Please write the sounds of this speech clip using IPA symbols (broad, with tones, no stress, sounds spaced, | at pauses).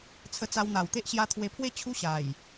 t͡sʰ ə˧ t͡s a˧ w n̪ a˨˩ w t̪ e˦ ʔ ɕ j a˧ t̪ʰ w e˧ pʰ w e˥˧ t͡ɕʰ u˦ ɕ a˨˩ j